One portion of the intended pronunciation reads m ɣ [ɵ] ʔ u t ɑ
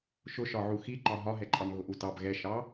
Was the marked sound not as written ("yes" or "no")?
yes